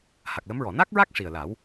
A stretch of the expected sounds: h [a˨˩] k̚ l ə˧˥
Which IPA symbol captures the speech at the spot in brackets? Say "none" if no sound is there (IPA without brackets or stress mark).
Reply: a˨˩